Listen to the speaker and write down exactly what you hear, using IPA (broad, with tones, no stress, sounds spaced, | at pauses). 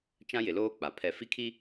t͡ʃ ã˦ j ɪ˨ l oː˦ k͡p a˨ pʰ ɛ˦ f i˦ kʰ i˦